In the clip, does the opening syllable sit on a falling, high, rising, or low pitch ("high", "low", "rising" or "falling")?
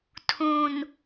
low